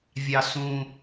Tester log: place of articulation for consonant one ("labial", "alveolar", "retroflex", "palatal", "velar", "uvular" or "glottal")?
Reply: labial